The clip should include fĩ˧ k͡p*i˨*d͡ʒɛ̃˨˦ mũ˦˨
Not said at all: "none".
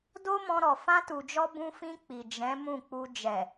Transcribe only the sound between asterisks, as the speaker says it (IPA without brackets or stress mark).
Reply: i˨